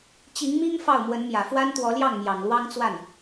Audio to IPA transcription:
t͡ɕ i˧˥ ŋ m i˥ ŋ f ɑ˥˩ ʊ̯ m w ə˧˥ n m j ä˨˩ f w a˥ n t̪ w ɔ˧˥ l j ɑ˥˩ ŋ m j ɑ˨˩ ŋ l w ɑ˥ ŋ t͡s w a˥˩ n

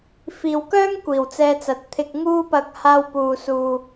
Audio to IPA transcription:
f iː˨ w k œː˥ ŋ kʷ iː˨˩ w t͡s ɛː˧ t͡s ɐ˨˥ t̚ t̪ʰ ɪ˧ k̚ ŋ uː˥ p ɐ˧ k̚ h aː˧ w p uː˨ s uː˨

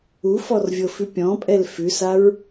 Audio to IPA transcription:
u f ɔ r vʲ ɤ f ʉ pʲ ɔ̃ pʼ ɛ l f ʉ s a ɹ

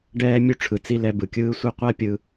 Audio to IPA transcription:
ɖ ɛː˧ mʲ u˧ ʈ͡ʂʰ ɯ˨ t͡s i˧ l ɛ˧ b ɯ˨ kʲ ɯː˦ sʷ e˦ qʷ a˦ pʲ ɯ˧

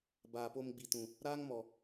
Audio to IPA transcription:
b aː˨ p o˧ m ɡ͡b i˨ t ũ˨ | ɾ aː˦ ŋ m ɔ˨

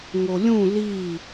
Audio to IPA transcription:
ŋ o lʲ ũ l i

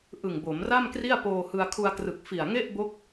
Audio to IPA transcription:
ʔ ɯ˨˩ ŋ b o˩˦ m r a˥˩ m k r i˥˩ a̯ p oː˧ h ɯ˧ a̯ kʰ u˧ a̯ k r ɯ˨˩ k̚ f i˨˩ a̯ ŋ e˥˩ ʔ b o˦˥ k̚

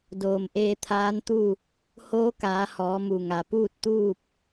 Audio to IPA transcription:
d oː˩ m ʔ eː˧ t̪ʰ aː˧˥ n t̪ u˥˨ | h oː˧˥ k aː˩˧ h ɔː˩˧ m u˩ ŋ a˩ p uː˥˨ t̚ t̪ uː˥˨ p̚

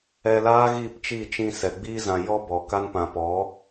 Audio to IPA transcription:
ɛ˧ l aː˦ ɣ i˦˨ p t͡ʃ i˦˨ t͡ʃ ĩ˧ s ɛ˨ ɡ͡b iː˦ z ã˧ j ɔ˦ b ɔ˨ k a˦ n p ã˧ p ɔ˨˦

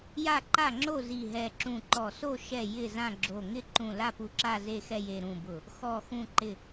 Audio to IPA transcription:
j a˥˨ ǃ a˥˨ ŋ͡ǁ o˥˨ z i˧˩ ɦ ɛ˧˩ ǁ ũ˧˩ ǃ ɔ˧˩ s o˥˨ ʃ ɛ˥˨ j ɪ˥˨ z ã˥˨ ɡ͡ǁ o˧˩ ŋ ɪ˥˨ ǃ ũ˧˩ l a˥˨ p u˧˩ ǁ a˥˨ z e˥˨ x ɛ˥˨ j e˧˩ ɾ ũ˧˩ b ʊ˧˩ | x ɔ˧˩ x ũ˧˩ ǃ ɪ˧˩

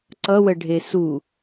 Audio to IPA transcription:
ǀ ʌ w ə ɖʱ e s u

